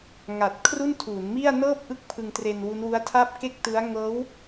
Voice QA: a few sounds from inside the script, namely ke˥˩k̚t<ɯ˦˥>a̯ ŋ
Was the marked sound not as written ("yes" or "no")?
no